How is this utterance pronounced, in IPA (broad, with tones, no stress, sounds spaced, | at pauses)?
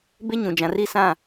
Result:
b e˦ ɲ ũ˨ d͡ʒ ã˨ r i˦˨ s ã˦˨